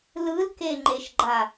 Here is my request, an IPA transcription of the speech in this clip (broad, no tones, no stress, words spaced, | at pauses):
lɯlkeŋ͡ǃeʃɡ͡ǃa